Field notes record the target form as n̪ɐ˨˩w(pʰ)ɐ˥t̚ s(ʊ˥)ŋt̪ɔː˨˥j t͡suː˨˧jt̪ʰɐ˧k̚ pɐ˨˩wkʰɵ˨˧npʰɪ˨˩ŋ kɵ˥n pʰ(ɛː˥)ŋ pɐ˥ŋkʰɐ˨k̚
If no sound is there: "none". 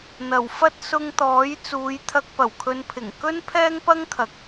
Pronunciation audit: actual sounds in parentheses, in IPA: f, ʊ˧, ɛː˥

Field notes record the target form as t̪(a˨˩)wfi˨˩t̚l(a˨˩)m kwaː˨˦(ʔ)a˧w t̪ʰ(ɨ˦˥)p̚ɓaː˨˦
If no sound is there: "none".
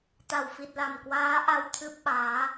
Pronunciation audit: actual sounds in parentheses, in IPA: a˨˩, a˨˩, ʔ, ɨ˦˥

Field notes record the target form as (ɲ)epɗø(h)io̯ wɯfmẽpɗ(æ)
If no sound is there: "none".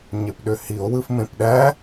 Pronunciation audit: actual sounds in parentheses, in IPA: ɲ, h, æ

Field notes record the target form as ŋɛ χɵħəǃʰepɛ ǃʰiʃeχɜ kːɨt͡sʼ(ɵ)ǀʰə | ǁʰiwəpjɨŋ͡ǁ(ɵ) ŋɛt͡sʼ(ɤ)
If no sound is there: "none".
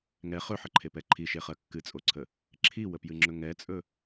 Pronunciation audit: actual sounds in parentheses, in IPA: o, ɵ, ɵ

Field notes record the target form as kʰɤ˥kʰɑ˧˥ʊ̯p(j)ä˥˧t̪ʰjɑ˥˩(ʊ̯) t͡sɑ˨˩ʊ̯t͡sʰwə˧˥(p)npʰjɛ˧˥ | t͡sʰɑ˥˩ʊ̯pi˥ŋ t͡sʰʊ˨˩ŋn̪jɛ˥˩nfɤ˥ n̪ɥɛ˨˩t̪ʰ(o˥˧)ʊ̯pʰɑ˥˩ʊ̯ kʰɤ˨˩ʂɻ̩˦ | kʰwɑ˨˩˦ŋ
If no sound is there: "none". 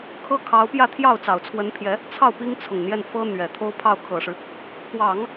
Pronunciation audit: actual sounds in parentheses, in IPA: j, ʊ̯, none, o˥

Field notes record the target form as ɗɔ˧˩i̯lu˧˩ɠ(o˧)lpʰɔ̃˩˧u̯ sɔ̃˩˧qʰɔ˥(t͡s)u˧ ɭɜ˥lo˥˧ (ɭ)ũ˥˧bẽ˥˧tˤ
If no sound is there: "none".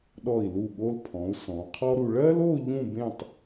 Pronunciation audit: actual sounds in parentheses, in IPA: o˧, ɾ, ʎ

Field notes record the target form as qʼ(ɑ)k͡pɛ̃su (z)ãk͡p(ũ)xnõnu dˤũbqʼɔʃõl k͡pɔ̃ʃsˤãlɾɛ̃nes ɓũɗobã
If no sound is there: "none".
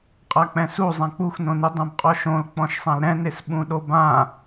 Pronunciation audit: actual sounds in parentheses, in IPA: a, zˤ, u

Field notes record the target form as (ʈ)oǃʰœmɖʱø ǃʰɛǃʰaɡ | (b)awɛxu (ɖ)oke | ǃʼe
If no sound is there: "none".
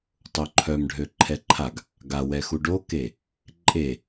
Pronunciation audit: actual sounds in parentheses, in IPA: tˤ, ɡ, ɖ

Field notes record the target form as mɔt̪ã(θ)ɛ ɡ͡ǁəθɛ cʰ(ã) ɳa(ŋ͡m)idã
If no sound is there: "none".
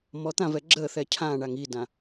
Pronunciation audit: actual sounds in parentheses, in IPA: v, ã, ŋ

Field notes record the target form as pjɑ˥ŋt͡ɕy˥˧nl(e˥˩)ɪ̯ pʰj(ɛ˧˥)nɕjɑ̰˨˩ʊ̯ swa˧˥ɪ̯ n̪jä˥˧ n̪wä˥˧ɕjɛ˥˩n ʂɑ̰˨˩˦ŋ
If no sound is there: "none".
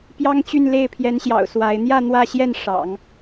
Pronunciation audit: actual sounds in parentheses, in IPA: e˥˩, ɛ˧˥

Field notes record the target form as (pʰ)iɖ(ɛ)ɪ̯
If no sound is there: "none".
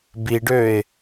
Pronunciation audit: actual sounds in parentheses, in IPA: b, ø

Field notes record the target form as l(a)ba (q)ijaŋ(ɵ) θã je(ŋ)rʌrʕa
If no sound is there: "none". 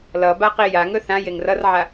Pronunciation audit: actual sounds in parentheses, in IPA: ʌ, q, ɵ, ŋ

